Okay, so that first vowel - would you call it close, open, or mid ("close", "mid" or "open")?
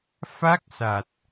open